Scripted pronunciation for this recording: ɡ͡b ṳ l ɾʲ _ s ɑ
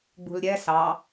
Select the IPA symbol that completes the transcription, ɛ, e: ɛ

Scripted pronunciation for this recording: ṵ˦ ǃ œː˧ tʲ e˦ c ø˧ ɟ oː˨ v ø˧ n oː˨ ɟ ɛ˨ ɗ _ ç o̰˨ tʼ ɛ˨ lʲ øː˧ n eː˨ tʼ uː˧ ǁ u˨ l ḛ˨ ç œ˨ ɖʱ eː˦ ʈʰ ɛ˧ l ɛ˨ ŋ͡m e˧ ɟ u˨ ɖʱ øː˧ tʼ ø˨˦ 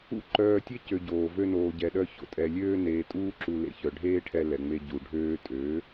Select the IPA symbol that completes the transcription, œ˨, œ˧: œ˧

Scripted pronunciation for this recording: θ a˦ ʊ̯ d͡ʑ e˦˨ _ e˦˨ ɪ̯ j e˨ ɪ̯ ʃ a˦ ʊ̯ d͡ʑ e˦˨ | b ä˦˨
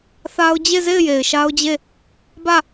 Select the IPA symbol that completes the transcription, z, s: z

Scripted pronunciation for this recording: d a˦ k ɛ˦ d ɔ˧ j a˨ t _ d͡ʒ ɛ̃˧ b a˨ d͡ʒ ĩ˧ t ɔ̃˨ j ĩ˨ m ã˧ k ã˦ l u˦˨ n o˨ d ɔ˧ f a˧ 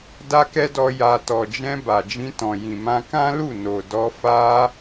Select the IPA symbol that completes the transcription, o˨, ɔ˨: ɔ˨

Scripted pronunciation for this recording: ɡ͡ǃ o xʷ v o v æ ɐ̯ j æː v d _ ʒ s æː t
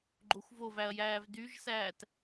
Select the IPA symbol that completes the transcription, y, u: y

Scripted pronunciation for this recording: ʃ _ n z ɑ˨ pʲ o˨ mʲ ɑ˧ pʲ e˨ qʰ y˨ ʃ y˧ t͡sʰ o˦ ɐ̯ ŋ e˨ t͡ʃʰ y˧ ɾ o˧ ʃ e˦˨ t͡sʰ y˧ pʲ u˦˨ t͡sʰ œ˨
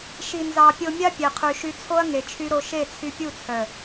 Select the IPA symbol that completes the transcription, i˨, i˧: i˨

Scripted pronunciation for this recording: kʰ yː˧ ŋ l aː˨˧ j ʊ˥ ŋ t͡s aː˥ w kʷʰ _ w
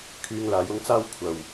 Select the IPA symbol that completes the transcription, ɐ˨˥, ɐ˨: ɐ˨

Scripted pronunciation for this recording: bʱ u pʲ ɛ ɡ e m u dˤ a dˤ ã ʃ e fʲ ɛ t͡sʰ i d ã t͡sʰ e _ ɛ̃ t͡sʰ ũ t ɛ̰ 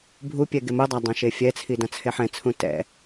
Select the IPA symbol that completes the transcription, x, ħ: ħ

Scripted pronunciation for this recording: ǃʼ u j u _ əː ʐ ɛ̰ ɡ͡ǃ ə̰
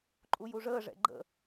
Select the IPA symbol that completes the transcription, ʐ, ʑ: ʐ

